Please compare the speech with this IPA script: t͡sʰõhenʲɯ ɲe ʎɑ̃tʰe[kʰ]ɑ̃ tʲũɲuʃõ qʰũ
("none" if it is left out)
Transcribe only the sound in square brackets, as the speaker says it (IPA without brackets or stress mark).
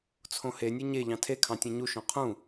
kʰ